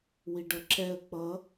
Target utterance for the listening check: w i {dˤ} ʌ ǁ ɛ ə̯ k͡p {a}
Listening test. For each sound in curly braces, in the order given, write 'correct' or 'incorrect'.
incorrect: ɖ, incorrect: ʌ

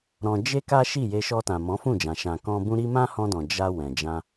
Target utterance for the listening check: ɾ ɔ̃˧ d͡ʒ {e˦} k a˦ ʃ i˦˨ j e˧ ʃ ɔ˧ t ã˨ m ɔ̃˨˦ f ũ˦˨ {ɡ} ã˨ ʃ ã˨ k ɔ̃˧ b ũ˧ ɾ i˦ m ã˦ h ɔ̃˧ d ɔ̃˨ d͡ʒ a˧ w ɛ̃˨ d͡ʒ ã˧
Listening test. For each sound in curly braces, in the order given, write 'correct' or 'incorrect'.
correct, incorrect: d͡ʒ

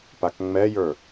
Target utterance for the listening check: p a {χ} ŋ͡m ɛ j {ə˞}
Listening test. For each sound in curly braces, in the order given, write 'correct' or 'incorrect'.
incorrect: k, correct

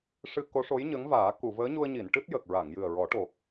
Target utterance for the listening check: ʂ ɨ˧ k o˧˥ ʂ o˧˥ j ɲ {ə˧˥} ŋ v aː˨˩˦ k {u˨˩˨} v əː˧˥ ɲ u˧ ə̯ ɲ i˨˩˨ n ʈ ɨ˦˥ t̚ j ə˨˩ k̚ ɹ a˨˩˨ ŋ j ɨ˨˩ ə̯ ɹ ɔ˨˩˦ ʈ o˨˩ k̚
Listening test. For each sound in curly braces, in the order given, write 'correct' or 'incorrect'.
correct, correct

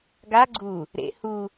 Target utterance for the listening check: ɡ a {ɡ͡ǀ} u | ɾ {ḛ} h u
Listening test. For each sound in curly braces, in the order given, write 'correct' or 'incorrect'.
correct, correct

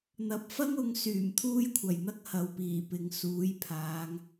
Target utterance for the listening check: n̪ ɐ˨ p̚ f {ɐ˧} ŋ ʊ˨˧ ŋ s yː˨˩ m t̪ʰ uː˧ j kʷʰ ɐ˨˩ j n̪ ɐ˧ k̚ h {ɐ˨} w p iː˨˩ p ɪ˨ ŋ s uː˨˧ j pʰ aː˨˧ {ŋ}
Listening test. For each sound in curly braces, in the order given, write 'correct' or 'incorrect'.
incorrect: ɐ˥, correct, correct

